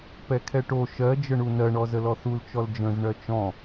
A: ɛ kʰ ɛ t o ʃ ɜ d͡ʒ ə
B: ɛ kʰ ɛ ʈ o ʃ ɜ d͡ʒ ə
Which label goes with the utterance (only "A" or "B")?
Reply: B